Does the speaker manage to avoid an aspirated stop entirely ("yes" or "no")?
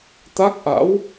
yes